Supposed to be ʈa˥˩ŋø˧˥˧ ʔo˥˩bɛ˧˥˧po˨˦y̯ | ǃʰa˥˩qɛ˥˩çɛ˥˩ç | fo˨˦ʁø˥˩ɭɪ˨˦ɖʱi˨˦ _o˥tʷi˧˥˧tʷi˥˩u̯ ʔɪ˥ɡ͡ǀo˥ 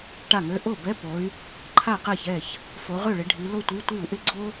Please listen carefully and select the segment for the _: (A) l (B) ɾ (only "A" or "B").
A